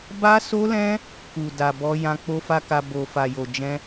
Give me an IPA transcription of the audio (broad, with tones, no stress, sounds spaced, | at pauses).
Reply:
b a˦ s o˦ l ɛ̃˦ | k u˨ d a˨ b ɔ˧ j ã˧ k͡p o˦ f a˦ k a˧ b o˨ f a˨ j o˨ d͡ʒ ɛ̃˧